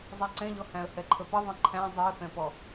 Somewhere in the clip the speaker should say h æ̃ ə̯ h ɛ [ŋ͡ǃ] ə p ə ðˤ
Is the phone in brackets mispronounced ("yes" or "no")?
yes